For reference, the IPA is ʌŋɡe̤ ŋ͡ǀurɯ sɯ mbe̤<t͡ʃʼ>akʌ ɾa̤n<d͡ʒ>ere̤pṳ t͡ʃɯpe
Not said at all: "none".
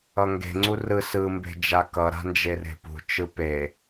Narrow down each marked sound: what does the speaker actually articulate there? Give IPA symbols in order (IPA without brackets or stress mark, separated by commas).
d͡ʒ, d͡ʒ